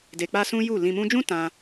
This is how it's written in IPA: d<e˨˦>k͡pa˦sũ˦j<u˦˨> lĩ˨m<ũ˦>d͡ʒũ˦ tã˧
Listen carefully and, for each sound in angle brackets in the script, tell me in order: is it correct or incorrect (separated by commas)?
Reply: incorrect, correct, incorrect